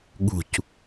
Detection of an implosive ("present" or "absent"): present